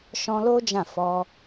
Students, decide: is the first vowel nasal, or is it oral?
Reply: nasal